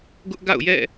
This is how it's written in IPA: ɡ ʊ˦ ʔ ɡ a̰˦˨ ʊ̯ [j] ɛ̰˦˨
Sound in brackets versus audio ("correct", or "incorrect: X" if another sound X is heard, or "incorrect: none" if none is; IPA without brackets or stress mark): correct